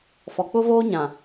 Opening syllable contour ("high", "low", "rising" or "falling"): low